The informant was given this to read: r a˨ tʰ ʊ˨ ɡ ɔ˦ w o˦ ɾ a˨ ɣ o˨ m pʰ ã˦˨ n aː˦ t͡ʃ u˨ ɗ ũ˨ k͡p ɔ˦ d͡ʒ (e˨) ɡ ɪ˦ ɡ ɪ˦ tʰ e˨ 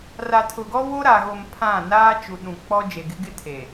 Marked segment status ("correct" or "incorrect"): correct